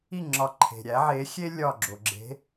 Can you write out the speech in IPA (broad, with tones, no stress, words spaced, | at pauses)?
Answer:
i˥˩ ŋ͡ǁɒ˧ ǃʰe̤˩ɾʲæ˩˥ ʕe˩˥xʲe˥ lʲɒ˥˩ɡ͡ǁo˩ ɡ͡ǁe̤˩˥